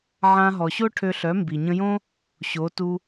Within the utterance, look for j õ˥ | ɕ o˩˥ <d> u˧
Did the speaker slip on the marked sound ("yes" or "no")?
yes